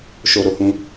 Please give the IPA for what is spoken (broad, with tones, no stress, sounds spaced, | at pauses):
ʃ o˧ ɾ o˨ h ũ˧